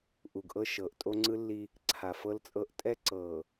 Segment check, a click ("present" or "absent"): present